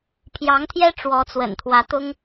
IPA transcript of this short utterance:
pʰ j ɑ˧˥ ŋ t̪ʰ j ɛ˥ ʈ͡ʂ w ɔ˧˥ t͡s w ə̰˨˩ n t̪ʰ w ä˧˥ t̪ ʊ˥ ŋ

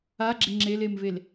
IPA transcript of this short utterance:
a ɡ͡ǁ ɪ ŋ͡ǁ e l e m v e l

